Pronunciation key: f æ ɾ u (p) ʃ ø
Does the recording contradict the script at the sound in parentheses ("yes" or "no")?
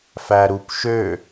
no